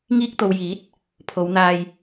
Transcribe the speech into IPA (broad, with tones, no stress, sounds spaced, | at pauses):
ŋ iː˧ k̚ t̪ o˨ w j iː˨˥ t̚ | pʰ o˨˧ w n̪ aː˧ j